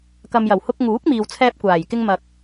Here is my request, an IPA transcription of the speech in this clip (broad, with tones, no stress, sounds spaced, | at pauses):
k ɐ˨ m j ɐ˨˩ w h ʊ˧ k̚ ŋ uː˨˥ k̚ m iː˨ w t͡sʰ ɛː˧ p̚ kʷ aː˨˩ j k ɪ˧ ŋ m ɐ˨ k̚